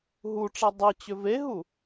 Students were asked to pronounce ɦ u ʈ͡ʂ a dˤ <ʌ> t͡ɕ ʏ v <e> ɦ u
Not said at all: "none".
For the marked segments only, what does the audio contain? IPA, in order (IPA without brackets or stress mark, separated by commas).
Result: ʌ, e